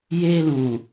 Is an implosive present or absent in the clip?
absent